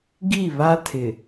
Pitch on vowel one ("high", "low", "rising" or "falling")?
falling